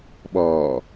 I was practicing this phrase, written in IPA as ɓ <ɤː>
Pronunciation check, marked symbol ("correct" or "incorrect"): incorrect